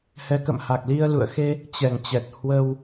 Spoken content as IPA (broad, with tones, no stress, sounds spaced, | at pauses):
h ɛ˨˦ k ə̰˧˨ m h a˨˩ k̚ l i˧ ə̯ l ṵ˧˨ ə̯ x e˧ | t͡ɕ ɛ˨˩ ŋ t͡ɕ ɛ˨˩ t̚ h w ə˧ w